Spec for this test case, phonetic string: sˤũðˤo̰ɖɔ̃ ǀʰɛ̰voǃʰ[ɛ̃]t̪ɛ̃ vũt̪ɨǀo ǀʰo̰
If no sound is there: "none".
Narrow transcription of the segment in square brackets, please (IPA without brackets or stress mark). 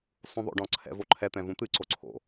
ɛ